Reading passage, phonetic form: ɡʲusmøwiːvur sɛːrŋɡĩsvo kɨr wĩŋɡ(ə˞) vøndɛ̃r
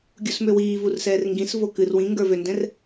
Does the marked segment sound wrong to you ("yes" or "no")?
no